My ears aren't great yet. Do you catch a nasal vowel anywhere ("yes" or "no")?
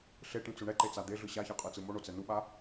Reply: yes